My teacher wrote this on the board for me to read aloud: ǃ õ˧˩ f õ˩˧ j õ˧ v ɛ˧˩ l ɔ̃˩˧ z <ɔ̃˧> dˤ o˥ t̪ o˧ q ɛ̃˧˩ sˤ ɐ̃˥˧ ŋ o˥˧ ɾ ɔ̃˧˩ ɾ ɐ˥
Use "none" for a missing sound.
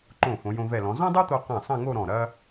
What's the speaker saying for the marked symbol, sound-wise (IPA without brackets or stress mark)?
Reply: ɔ̃˥